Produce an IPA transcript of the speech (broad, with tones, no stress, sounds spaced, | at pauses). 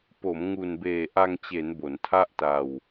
p o˩˦ m ŋ u˨˩ n b eː˨˩ ʔ a˧ ŋ t͡ɕ e˩˦ n b o˩˦ n tʰ a˥˩ ʔ t a˧ w